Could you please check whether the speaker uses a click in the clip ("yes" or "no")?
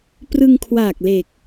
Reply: no